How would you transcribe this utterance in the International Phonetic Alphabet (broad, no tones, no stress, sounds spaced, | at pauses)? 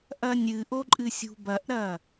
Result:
ʔ ɐ nʲ ɨ ʔ o ǃʼ ɨ sʲ ṳ b ɐ ʔ ɾ ɐ